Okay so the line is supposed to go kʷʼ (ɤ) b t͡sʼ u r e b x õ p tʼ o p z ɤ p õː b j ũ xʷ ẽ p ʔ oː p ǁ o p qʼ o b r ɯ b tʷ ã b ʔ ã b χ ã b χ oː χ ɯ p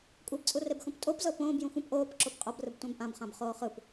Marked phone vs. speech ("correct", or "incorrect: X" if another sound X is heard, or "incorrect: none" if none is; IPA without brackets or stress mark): correct